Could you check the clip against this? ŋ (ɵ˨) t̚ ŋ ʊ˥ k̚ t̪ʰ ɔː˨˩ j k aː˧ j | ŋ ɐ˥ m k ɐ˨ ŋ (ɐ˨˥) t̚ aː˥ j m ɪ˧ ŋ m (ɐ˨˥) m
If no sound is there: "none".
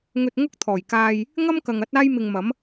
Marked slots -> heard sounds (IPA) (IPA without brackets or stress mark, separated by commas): ɵ˧, ɐ˨˥, ɐ˨˥